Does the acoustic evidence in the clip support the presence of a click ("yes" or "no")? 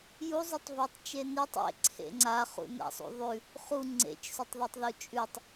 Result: yes